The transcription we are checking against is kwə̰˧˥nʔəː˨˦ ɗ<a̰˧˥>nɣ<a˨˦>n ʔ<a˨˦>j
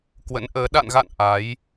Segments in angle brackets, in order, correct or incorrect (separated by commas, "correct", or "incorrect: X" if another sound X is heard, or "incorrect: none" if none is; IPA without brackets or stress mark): incorrect: a̰˧˨, incorrect: a̰˧˨, correct